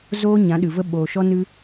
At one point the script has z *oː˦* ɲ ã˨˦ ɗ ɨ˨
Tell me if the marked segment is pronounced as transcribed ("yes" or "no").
yes